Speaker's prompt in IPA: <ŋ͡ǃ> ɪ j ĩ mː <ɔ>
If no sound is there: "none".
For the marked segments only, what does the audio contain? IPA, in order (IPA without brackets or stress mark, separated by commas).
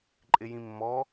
ǃʼ, ɔ